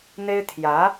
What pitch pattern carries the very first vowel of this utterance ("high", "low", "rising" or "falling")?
high